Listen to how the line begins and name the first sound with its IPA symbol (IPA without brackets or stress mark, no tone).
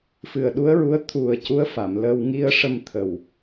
f